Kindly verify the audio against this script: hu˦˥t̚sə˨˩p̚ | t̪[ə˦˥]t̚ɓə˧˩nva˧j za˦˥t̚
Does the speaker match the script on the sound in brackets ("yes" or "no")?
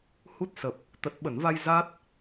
no